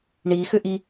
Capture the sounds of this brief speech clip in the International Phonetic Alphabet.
ɳ i x ʏ ʔ i

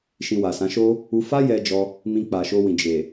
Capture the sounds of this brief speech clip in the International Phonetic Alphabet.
ʃ ĩ˧ w a˨ s ã˨˦ ʃ o˦ | u˧ f a˦ j ɛ˧ d͡ʒ ɔ˦ | m ĩ˧ k͡p a˨ ʃ o˧ w ĩ˨ d͡ʒ e˨

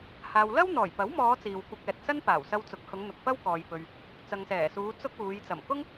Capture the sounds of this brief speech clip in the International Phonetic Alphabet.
h aː˨ w l ɐ˥ w n̪ ɔː˨˩ j p ɐ˨˥ w m ɔː˨˧ t͡s iː˨ w kʷ ɐ˧ k̚ ɛː˨ t̚ s ɐ˥ n p aː˨˩ w s ɐ˧ w t͡s ʊ˨˥ k̚ h ʊ˨˧ ŋ n̪ ʊ˨ k̚ f ɐ˥ w k ɔː˨ j p ɵ˨ ɥ | t͡s ɐ˨ ŋ s ɛː˨˩ s uː˨˧ t͡s ʊ˥ k̚ uː˨˧ j t͡s ɐ˨˩ m k ʊ˥ ŋ

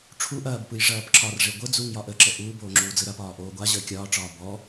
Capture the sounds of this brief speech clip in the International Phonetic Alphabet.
ʈ͡ʂʰ u ʔ ɐː b p ɯ j ʐ ɐː p ǁ ɒ r ʐ e ɡʷ ə d͡z u ŋ j ɒ ʔ ə ǁ ə ʔ uː b oː ŋ͡ǁ uː d͡z ɯ ɾ ɐ p ɒː ʔ oː ɡʷ a ʑ əː kʲ ɒː ʈ͡ʂ ɒː b ɔ

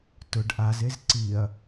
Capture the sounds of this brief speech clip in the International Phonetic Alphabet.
t ʊ ɖ ʔ a z e z ǀ i ɐ̯

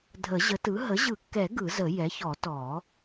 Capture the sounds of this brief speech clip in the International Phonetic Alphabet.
dʱ ə˨˩˦ ʑ ə˩˥ t ɯ˩˥ ɦ ə˩˥ ʑ ɯ˨˩˦ kː ɛ˨˩˦ ɡ ɯ˨˩˦ z ə˨˩˦ j ɛ˩˥ ç ɔ˨˩˦ t ɔ˨˩˦

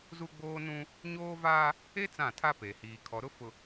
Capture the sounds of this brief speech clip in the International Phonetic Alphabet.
z u˦ ɡ͡b oː˦ n ũ˦ | ɲ oː˦ v aː˦ | e˦ t͡s ã˦˨ tʰ a˦ p e˨ h iː˨ kʰ ɔ˨ ɾ ʊ˦ f ʊ˨

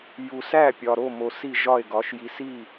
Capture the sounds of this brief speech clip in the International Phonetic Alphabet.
j u˨ s æ˥˩ pʲ ɒ˨ ɾ o˥˩ m o˨ s i˥˩ ʒ ɒ˥˩ e̯ ɡ ɒ˩˥ ʃ j i˨ s i˥˩

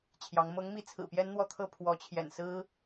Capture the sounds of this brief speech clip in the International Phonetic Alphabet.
t͡ɕʰ j ɑ˧˥ ŋ m ɤ˧˥ ŋ m i˧˥ t͡sʰ ɹ̩˨˩ p j ɛ˥ n n̪ w ɔ˥˧ t̪ʰ ɤ˥˩ pʰ w ɔ˧˥ t͡ɕʰ j ɛ̰˨˩ n s ɹ̩˥

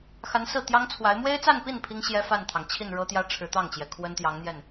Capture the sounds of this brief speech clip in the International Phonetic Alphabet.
x a˧˥ n s ɹ̩˥˩ t̪ j ɑ˥ ŋ t͡sʰ w a˧˥ ɪ̯ m w e˥ ɪ̯ t͡s a˥˧ n p i˥˩ n pʰ i˥ ŋ ɕ j ɛ˥ f a˥˩ n t̪ʰ ɑ˩ ŋ t͡ɕʰ i˥˩ n ɻ ɤ˥ t̪ j ä˥ ʈ͡ʂʰ ɻ̩˧˥ t̪ ɑ˥˩ ŋ t͡ɕ j ɛ˩ kʰ w ə˥ n t̪ j ɑ˧˥ ŋ n̪ j ɛ˥˩ n

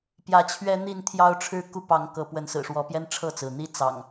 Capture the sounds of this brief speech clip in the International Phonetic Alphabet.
p j ä˨˦ t͡ɕʰ ɥ ɛ˦ n̪ i˥˨ n t̪ʰ j ɑ˦ ʊ̯ ʈ͡ʂʰ ɻ̩˥˨ k u˦ p ɑ˨˦ ŋ k ɤ˨˦ p w ə˨˦ n s ɹ̩˨˩ ʂ w ɔ˨˦ p j ɛ˦ n ʈ͡ʂʰ ɤ˥˨ t͡s ɹ̩˩ n̪ i˦ t͡s ɑ̰˨˩ ŋ

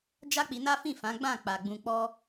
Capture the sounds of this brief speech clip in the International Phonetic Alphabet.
d͡ʒ a˦ k͡p i˧ n a˦ f ĩ˦˨ f ã˨˦ ɡ͡b ã˦˨ k͡p a˨ ɡ͡b ũ˨ k͡p ɔ˧

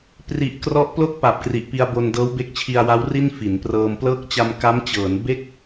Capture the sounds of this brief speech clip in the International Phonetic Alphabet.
p r i˨˩ ʔ k r ɔ˦˥ ʔ p l o˥˩ k̚ p a˨˩ p̚ k r i˨˩ ʔ p i˧ a̯ b o˧ n d ɤː˦˥ w b e˦˥ k̚ t͡ɕʰ i˧ a̯ w a˦˥ w r i˥˩ n f i˩˦ n p r ɤː˧ m p l ɤː˦˥ k̚ t͡ɕ a˧ m k a˦˥ m t͡ɕ ɤː˩˦ n b e˥˩ k̚

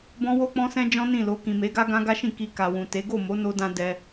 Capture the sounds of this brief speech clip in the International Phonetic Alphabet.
b ɔ̃˦ w o˦ k͡p ɔ̃˦ s ɛ̃˦ d͡ʒ ɔ̃˦ n ĩ˦˨ l o˧ k ĩ˨ m e˨˦ ɡ a˦ ɡ ã˦ ɡ a˦ ʃ ĩ˦˨ k i˧ k a˨ w ũ˨ t e˨˦ ɡ o˦˨ m o˨˦ n o˧ d ã˧ d ɛ˧

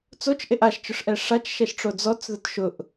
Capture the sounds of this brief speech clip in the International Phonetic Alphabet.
t͡s o t͡ʃ ʔ e ʔ a ʃ t͡ʃ ʊ ʂ ʔ ɛ ʂ a t͡ʃ ʃ ɛ ʃ ʈ͡ʂ o d͡z ɔ t͡s ð ʊ t ʃ ʊ ʔ

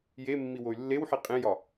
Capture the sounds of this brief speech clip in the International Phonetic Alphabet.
j e mː i w o y̯ lː e w ħ i qʼ ẽ j ɒ

